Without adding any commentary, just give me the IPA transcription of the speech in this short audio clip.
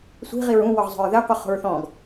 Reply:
sʷ i̤ ʁ i ɹ ũ w ɔ ʁ zˤ o̤ ɹ ð ɛ qʷ ɯ χ o̤ ɹ θ ɔ̃ ɡ

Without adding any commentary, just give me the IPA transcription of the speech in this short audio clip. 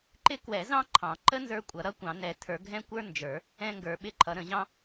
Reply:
ǃ ɪ˦˥ k w ɛ˨˩˦ z ɑ̃˦˥ ǃʰ ɑ̃˨˩˦ ǃ ə˦˥ n z ə˞˦˥ kʷʼ ʌ˨˩˦ ɾ ʌ˦˥ kʷ ɑ̃˨˩˦ n ɛ˨˩˦ tʰ ə˞˨˩˦ ɡʱ ɛ̃˦˥ kʷ ə˞˦˥ n d͡ʒ ə˞˨˩˦ | ɛ̃˦˥ ŋ ɡ ə˞˨˩˦ ɓ ɪ˦˥ ǃʰ ʌ˨˩˦ ɾ ə̃˨˩˦ ʑ ɑ̃˦˥

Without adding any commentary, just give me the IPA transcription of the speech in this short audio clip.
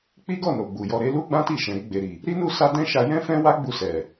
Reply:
k͡p i˦ ɡ ɔ˦˨ n o˨ ɡ͡b u˨ j ɔ˧ ɾ e˧ l u˦ ɡ͡b ã˦ t i˦˨ ʃ ɛ̃˨ ɾ i˧ ɡ͡b e˨ ɾ i˨ | ɾ i˦ n u˦˨ s a˧ d ɛ̃˦ ʃ a˧ j ɛ̃˦ f ɛ̃˦ w a˦ ɡ͡b u˧ s ɛ˨

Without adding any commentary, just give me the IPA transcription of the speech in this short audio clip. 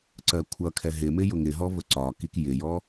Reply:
ǀ ɜ kʷʰ ʌ kʰ ɛ ɦ ɪ m ɪ j ʊ ŋ ɪ ɦ ɔ v ə ǀ ɒ k i k j ɪ j ɔ

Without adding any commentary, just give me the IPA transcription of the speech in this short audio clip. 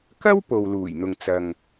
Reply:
k ɐ˥ w p o˨ w l uː˨˩ j n̪ ʊ˨ ŋ t͡s ɐ˨ ŋ

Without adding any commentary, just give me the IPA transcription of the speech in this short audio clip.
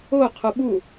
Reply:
o qʰ o ɓ u

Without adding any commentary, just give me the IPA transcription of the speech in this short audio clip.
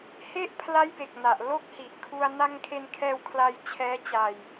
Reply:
h e˥˩ ʔ pʰ l a˦˥ j b e˨˩ k̚ n a˨˩ ʔ l o˦˥ k̚ h i˨˩ ʔ kʰ u˧ a̯ n a˧ ŋ kʰ e˧ n kʰ ɛː˧ w kʰ l a˧ j t͡ɕʰ ɛː˦˥ t͡ɕ a˧ j

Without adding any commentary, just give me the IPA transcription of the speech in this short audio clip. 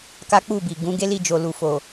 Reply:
k a˦ k͡p u˦˨ b i˨ ɡ ũ˨˦ ɡ e˦ l i˦˨ d͡ʒ o˨ l u˨ f o˨

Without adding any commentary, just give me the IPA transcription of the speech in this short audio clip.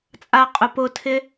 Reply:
t͡sʼ a qʼ ʊ p ʊ tʰ ɪ

